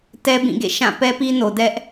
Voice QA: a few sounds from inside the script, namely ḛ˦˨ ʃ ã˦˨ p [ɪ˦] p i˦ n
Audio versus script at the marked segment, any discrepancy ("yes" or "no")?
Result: yes